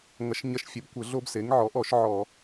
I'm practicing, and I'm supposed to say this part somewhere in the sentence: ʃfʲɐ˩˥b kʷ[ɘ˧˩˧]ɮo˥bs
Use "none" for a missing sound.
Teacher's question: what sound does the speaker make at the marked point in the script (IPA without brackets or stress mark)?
ɘ˧˩˧